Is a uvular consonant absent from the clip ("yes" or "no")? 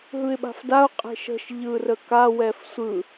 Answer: no